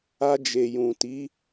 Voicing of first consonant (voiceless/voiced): voiced